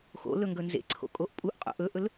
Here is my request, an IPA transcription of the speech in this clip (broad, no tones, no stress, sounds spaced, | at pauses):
x o̰ l ɵ ŋ ɡ ɵ n z ḛ ǀʰ o̰ kʼ o ʔ pʼ u ʔ qʼ o̰ ʔ ɵ ʔ ɵ l